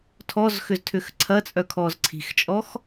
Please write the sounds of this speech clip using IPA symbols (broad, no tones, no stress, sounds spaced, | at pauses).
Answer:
tʰ ɔ z x ʏ z tʰ ʏ x ǀʰ ɐ t͡sʼ œ kʰ ɔː z ǀʰ i̤ x t͡ʃʼ ɔ x